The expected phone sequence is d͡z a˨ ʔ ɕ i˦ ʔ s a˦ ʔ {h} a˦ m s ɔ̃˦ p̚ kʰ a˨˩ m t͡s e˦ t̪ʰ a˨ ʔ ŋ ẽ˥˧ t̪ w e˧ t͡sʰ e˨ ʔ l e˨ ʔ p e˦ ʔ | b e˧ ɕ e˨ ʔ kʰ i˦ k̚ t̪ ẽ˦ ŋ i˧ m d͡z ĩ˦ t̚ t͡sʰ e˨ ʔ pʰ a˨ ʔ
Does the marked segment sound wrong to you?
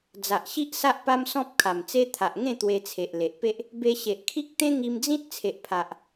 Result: yes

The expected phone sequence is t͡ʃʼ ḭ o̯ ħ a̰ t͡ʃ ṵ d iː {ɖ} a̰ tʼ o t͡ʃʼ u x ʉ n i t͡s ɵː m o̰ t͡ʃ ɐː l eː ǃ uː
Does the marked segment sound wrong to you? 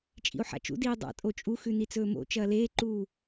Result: yes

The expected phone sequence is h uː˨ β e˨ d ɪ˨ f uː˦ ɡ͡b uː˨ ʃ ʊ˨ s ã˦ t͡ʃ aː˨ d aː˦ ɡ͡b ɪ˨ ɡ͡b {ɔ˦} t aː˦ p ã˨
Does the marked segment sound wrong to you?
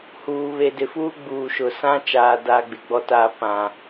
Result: no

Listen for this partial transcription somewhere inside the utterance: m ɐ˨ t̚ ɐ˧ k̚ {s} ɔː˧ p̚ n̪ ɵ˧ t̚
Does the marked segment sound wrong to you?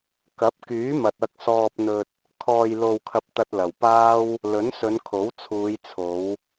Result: no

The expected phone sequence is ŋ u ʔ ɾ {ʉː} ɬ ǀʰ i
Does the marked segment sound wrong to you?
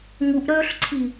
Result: yes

